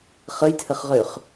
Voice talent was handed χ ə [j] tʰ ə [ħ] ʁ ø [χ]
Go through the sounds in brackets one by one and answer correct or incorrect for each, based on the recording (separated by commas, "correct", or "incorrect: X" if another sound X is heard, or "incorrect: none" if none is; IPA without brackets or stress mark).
correct, incorrect: χ, correct